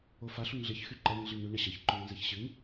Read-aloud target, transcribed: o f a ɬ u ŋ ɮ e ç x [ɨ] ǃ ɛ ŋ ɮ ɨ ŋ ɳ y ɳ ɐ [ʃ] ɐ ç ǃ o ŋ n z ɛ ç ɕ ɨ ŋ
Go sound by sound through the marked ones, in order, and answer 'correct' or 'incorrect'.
incorrect, incorrect

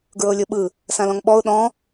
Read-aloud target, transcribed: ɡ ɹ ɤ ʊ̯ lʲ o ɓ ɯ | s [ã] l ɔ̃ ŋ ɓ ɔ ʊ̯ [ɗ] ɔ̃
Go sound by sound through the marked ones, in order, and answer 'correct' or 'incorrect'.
correct, correct

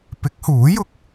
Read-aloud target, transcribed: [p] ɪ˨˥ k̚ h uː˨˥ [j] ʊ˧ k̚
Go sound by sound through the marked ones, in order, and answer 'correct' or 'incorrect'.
correct, correct

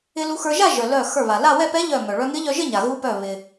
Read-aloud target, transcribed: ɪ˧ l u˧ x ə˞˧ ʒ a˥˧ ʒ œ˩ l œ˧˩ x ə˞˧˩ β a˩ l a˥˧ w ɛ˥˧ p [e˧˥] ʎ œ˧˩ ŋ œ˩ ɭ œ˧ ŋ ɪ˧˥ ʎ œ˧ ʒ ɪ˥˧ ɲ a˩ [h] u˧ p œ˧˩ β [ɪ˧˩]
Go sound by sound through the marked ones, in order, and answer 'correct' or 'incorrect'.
incorrect, incorrect, incorrect

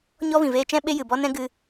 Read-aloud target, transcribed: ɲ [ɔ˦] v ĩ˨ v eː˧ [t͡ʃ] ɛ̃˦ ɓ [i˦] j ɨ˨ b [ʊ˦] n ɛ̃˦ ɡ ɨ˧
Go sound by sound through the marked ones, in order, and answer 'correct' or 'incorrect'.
correct, correct, incorrect, incorrect

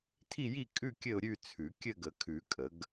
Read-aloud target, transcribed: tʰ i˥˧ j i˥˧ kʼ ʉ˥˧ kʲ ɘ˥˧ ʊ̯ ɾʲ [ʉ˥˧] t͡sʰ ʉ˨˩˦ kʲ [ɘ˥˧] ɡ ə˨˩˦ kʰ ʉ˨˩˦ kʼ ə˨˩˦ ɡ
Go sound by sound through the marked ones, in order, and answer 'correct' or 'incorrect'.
correct, correct

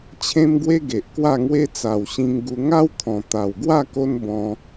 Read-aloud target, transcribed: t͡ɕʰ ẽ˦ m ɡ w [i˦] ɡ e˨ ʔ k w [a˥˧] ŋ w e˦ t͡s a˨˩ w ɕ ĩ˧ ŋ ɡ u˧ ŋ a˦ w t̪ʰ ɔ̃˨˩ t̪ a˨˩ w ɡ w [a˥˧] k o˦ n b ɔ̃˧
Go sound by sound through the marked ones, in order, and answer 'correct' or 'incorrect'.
incorrect, correct, correct

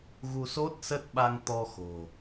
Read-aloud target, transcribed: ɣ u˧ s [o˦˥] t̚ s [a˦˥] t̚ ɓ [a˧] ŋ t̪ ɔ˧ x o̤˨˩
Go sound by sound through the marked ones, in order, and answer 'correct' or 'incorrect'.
correct, incorrect, correct

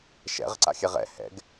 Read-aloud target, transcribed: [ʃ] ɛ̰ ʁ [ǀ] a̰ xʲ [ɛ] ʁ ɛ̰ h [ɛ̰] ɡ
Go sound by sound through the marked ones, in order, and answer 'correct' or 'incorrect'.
correct, correct, correct, correct

